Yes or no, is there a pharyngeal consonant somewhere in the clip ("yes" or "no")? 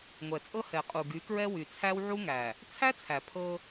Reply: yes